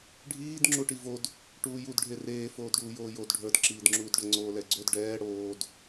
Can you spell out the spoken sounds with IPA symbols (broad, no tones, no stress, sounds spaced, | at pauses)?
ɖʱ iː d ŋ͡ǁ u ʈ i v o d | ʈ uː j u d ɖʱ e r eː f oː d ɖ uː j oː j o d ɖʱ ə˞ d ǁ iː d ŋ͡ǁ uː d ɖ ə ŋ͡ǀ oː l ɛ ɡ͡ǀ o d ɖ ɛː ɽ oː d